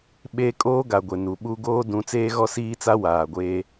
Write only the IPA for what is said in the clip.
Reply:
ɓe˦ kʼoː˦ɡa˨ɡʷe˨ nu˨ɓu˦ ɡoː˦dũ˨˦ t͡seː˦ɣɔ˦siː˦t͡sa˦ waː˨ɡʷeː˦

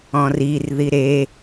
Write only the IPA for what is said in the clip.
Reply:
ɔ̃rir ðiɾe

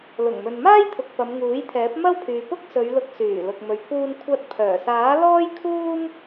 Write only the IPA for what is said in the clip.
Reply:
lʊ˨˩ŋmɵ˨nmaː˥j t̪ʰʊ˨k̚ pɐ˨˧mŋuː˨˥jt̪ʰɛː˨˥p̚ mɐ˥wpʰyː˨ pʊ˥k̚ sɵ˨˧ɥlʊ˨˥k̚syː˨˩ lʊ˨k̚mɵ˨ɥpʰuː˧nkʷʰɐ˧t̚ pʰœː˨˩saː˨˥lɔː˥j kʰuː˥m

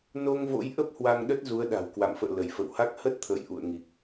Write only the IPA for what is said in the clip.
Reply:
no˧ŋvo̰˧˥jʔə˦˥p̚ hwa˧ŋɗə˦˥t̚ zu˨˦ə̯ɗa̤˨˩wkwa̰˧˨mfə̰ː˧˨ lə˧˩jfə̰˧˨wha˦˥k̚ hə˦˥t̚t̪ʰə̰ː˧˨j ʔṵ˧˨ə̯ ŋi˨˩k̚

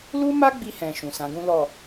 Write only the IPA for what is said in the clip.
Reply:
lu˦ma˦ɡ͡bi˧ hɛ̃˧ ʃũ˨sã˨˦ɡũ˦ lɔ˦˨

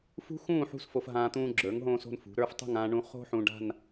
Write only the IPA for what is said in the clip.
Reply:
fṳ˥xũː˥˧ ħṳ˥˧sfo˧fɦãː˧ t̪ũː˧ɡ͡ǁə˞˩˧ŋɦõː˧so̤˧n fṳ˩˧ɾə˞˥˧ftˤṳ˥˧ŋ ãː˧ɳũ˧ χo̤˥ħũ˧ɖa̤˥˧n

